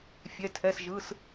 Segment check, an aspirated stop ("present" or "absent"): present